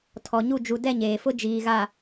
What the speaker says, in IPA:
tʰɔ˨ɲu˦˨ d͡ʒu˨dɛ˦˨ ɲeː˨fʊ˦d͡ʒiː˨ ɣa˨

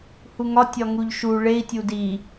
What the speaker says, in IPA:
huŋɒ tʲɒŋuʎʃu ɭei̯ tʲudi

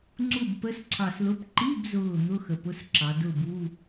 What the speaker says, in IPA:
ŋ͡ǀu˥˩bpə˧˥˧sǀʰɑ˧˩s lʊ˧˥˧p ǃi˧˥˧bzʊː˧˩ n̪ʊ˧˥˧xə˩˧pʊ˧˥˧s ǁɑ˩˧ dʊ˥˩bu˧˥˧

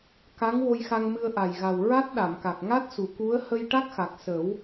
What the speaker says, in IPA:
ka˧˥ŋ wo˧jxa˧ŋmɨ˧ə̯ ʔa˨˩jɣa˨˩w ɹa˦˥t̚ɗa˨˩˨mka˨˩k̚ ŋa˦˥t̚su˨˩˨ku˧˥ə̯ hə˧jʈa˦˥k̚xa˨˩k̚sə˨˩˦w

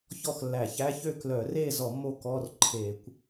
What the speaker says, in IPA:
çɔ˥˨xlːæ˧˩˧ çæ˧˥˧çø˥˨ klœ˧˩˧re˥˨zɔ˧˩˧ mo˥˨kɔ˧˥˧rǃʰe˧˩˧kʷ

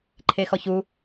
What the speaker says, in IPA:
ǃʰexɔçu

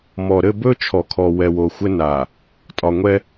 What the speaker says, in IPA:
mɔ˨ɾɘ˦˨bɵ˦t͡ʃʰɔ˨ kʰɔ˨ wɛ˨wo˨xʷɘ˦na˨ | tʼɒ˨ŋʷɛ˦

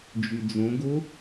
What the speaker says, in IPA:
d͡ʒyd͡zõɡo

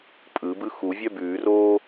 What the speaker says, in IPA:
pʼɯbɯ xuvʲœ bʉːroː

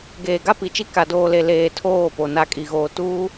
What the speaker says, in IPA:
ɡeː˨ɡa˦pi˨t͡ʃi˦ ka˨doː˨le˨ leː˨ tʰoː˦˨po˨ na˨ kʼi˨ɣoː˨ tuː˦

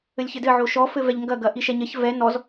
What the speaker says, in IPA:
ɘlʲçɘdɘ ʕoʃɔ fɘvɛʎŋɡɐ ɡɐʔiʃɛɲɐç vɛ nɔz

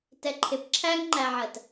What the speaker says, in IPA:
tɛǃʰɪp ǁʰæŋŋ͡ǃæʕɜt

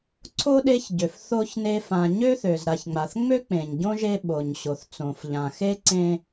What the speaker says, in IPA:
ǀʰo˥ɗe˦çɟø˩f θo˥çne˦fã˨ ɲø˥θø˩z ɾa˨çŋ͡ma˩θŋ͡mø˥ k͡pẽ˩ɲɟõ˥ʒe˦ ɓo˩ɲɕo˩θ t͡sõ˩fʎã˩ xe˥ǀẽ˦

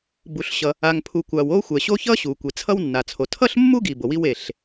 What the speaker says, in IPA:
bu˩ɬɕʌ˩ | a˩ŋpʰu˩ kʷa˩wo˥xʷɛ˩ɕo˥ çʌ˥ɕu˩kʷe˩ t͡sʰʌ˥wnːa˩t͡sʰo˩ tʰʌ˥ɬmːu˥ɡi˩ bo˩wi˥w e˩ɬ

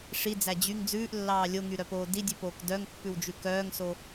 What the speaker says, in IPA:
ʂid͡zæ d͡ʑyŋ d͡zʉːʔlːɑː lʲoŋyɾœpoː didʲʉpoːk dœŋpːʉwd͡ʒʉ kœːŋso

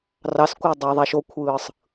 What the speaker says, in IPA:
rɑskʷɑ dˤue̯ðˤæʃokʷʰɯːsˤ

